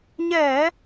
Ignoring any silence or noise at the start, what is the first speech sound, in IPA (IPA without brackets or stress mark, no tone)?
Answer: ɲ